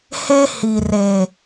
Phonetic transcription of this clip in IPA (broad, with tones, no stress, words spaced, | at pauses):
he˦ hi˨re˨